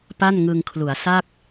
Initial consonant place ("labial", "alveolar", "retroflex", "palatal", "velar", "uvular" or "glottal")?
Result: labial